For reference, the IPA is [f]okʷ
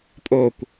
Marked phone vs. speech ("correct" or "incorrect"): incorrect